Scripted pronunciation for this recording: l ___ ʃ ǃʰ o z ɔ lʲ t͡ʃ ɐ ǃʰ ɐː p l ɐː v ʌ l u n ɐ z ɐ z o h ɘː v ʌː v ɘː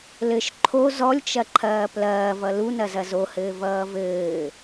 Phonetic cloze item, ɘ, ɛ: ɘ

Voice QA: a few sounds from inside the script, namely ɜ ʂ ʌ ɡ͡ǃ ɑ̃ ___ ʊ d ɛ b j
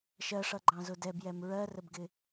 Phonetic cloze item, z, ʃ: z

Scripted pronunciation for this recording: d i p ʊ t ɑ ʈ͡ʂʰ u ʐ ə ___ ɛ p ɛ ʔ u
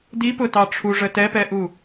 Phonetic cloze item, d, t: t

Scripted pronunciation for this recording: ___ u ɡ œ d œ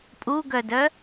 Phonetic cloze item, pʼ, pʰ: pʼ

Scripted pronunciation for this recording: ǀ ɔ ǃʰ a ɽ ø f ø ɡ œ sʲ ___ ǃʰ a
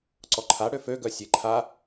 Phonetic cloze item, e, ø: e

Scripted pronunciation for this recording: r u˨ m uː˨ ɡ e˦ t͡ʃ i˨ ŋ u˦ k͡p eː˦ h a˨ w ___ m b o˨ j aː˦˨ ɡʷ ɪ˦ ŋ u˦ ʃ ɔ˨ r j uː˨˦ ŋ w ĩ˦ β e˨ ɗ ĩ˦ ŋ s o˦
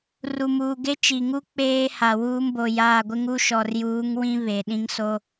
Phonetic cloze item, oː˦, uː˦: uː˦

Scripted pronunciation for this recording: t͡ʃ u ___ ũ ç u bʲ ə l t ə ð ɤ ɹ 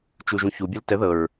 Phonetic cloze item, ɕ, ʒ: ʒ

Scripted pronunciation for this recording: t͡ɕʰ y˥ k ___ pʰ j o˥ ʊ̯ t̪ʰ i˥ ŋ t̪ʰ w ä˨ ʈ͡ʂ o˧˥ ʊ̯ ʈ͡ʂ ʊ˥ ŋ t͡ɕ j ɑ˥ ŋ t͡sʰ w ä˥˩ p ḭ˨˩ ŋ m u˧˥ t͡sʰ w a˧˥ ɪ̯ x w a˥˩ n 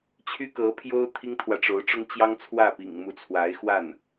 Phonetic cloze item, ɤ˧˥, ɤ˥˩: ɤ˧˥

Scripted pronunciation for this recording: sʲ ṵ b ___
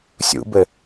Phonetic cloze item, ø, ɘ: ɘ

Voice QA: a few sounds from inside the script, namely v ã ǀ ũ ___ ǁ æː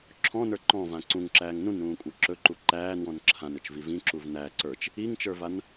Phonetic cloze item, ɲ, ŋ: ŋ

